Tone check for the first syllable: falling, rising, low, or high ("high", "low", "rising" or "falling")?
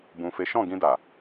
low